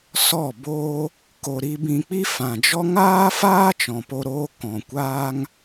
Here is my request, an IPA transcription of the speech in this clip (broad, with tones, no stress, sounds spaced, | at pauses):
s ɔ˦˨ b oː˦ | k o˨ ɾ i˧ b ĩ˧ k͡p i˦ f ã˨ d͡ʒ ɔ˦ ŋ aː˦ f aː˦ t͡ʃ ɔ̃˨ p o˧ ɾ oː˧ k ɔ̃˨ kʷ aː˦ ŋ